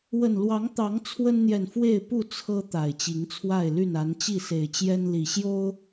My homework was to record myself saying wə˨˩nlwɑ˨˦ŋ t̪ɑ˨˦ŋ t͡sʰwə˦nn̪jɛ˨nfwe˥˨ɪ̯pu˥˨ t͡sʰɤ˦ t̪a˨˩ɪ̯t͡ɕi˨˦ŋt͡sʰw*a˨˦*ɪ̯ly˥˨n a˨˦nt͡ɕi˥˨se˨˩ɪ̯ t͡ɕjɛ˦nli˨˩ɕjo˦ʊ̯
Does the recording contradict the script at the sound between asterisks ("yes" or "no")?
yes